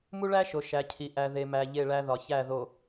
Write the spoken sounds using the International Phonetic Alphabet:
m u˦ ɭ æ˦ ʃ o˨ ʃ æ˨ cʰ i˨ ʔ æ˨ ð e˨ m æ˨ ʎ e˦˨ ɭ æ˦ ð ɒ˨ ç æ˦˨ ð o˨

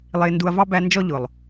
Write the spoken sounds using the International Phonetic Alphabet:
lˠ ɪː˧ n d u˧ ɐ̯ v ɑ˦ b æ˧ n d͡ʒ ɔ˦ ʎ ʊ˨ lˠ

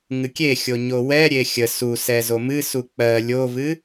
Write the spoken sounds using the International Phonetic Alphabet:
ŋ ɨ kʲ e xʲ o ɲ o w ɛ ɾʲ e xʲ ə s u s ɛ z o m ɨ s u k͡p ɜ lʲ o v ɨ

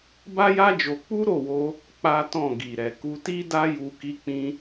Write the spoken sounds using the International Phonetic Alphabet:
b a˦ j a˦ d͡ʒ o˧ k͡p u˦ ɾ o˦˨ w o˧ | k͡p a˦ t ɔ̃˦˨ ɡ i˨ ɾ ɛ˨ k u˧ t i˦ d a˦ j u˧ k i˧ k͡p ĩ˧

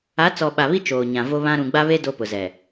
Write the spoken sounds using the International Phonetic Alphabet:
a˨˦ t͡s ɔ˨ ɓ a˨ β i˦ t͡ʃ oː˨ ɲ ã˨ v o˦ β ã˦ ɾ ũ˨ ɡ͡b a˦ β e˦ d o˦ p ʊ˨ z ɛ˨

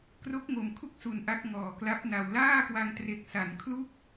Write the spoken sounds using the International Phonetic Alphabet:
k r o˦˥ k̚ ŋ o˨˩ m kʰ u˥˩ k̚ s u˨˩ n ʔ a˦˥ k̚ ŋ ɔː˨˩ k l a˦˥ p̚ n a˧ w l aː˥˩ k w a˧ ŋ t r e˨˩ k̚ s a˩˦ n kʰ l u˥˩ k̚

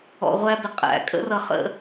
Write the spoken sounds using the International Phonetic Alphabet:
ɔ̰˨ ʁʷ æ˦ b ɪ˨ qʼ æ̰˨ kʼ ə̰˦ r ʌ˨ χ ə̰˦˨

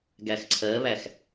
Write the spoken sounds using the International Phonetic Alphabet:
ɡ æ x ǀʰ ɜ β æ x

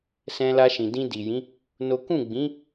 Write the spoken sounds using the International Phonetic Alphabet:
s ɛ̃˧ l a˧ ʃ ĩ˨ d ĩ˧ d i˨ j ĩ˨˦ | n o˦ k ũ˦˨ ɡ͡b ĩ˨˦

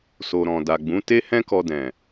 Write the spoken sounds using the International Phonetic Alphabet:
s o˨ ɾ ɔ̃˨ d a˨ ɡ͡b ũ˨˦ t e˦ h ɛ̃˦ k ɔ˧ d ɛ̃˨

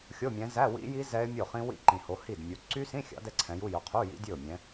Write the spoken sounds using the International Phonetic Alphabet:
xʲ o˧˥˧ mʲ ɛ̃˨˦ z æ˧˥˧ w ḭ˦˥ j i˦˥ z ɛ˦˥ ɪ̯ mʲ o˥˩ χ ĩ˦˥ w ḭ˥˩ ǃ ĩ˨ h o˨˦ h i˥˩ d mʲ u˨˦ ǀ y˦˥ s ĩ˧˥˧ xʲ ɑ̰˨˦ d ɛ˦˥ ǀʰ ɛ̃˨˦ j u˧˥˧ j ɵ˨˦ qʰ u˧˥˧ j ḭ˦˥ dʲ ɵ˥˩ ʊ̯ mʲ ɛ̃˨˦

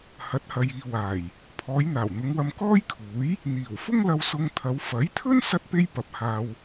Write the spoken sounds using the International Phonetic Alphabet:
h ɐ˨˥ t̚ h ɐ˨ j iː˨ w aː˨˩ j | pʰ ɔː˨˧ j n̪ aː˨˩ w n̪ ʊ˨˧ ŋ w ɐ˧ m k ɔː˥ j kʰ uː˨˥ j | n̪ iː˨˩ w f ʊ˥ ŋ l ɐ˧ w s ʊ˧ ŋ t̪ʰ ɐ˨˧ w f ɐ˨˥ j t̪ʰ ɵ˥ n s ɐ˥ t̚ p e˥ j p ɐ˧ p̚ h aː˧ w

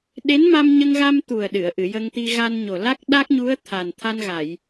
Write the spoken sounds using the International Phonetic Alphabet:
ɗ e˧˥ n m a˧ m ɲ ə˧ ŋ ɣ a˧ m t̪ u˨˩ ə̯ ɗ ɨ˨˩˨ ə̯ ʔ ɨ˨˩˨ j ə˧ ŋ t̪ i˧ ɣ a˧ n ɲ o˨˩ l a˦˥ k̚ ɗ a˦˥ k̚ ɲ u˧˥ ə̯ t̪ʰ a˨˩ n t̪ʰ a˧ n ɣ a˨˩˨ j

